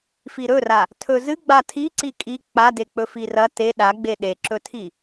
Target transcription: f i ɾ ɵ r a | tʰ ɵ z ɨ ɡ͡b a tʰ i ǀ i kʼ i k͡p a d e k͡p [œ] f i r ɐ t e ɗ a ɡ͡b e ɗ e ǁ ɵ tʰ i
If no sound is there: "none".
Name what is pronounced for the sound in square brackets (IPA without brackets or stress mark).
ɵ